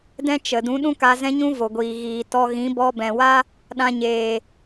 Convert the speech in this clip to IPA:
dɛ̃˦t͡ʃə˨ dũ˨˦ɗũ˦ka˧ zɛ̃˦ɲũ˦vo˨ɡʷiː˨ ɣiː˨ tɔ˧ɣĩ˨˦ bɔ˧bɛ̃˨wa˦ | ɗã˧ɲeː˨

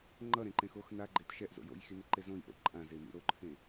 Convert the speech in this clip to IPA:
ŋ͡ǃʌɾẽǃẽx ox naɡ͡ǃet ʃɛʔzo̰ jo̰jxineǃe zõjʔo̰ ǃʼãzemḭ ɾoǃʰẽ

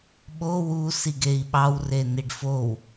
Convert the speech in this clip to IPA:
ɓo wu siɡei̯ɓɑw reniɖfow

